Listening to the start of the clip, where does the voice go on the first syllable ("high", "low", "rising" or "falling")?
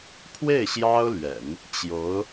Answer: falling